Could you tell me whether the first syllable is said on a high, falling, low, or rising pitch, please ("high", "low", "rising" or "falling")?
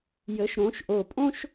rising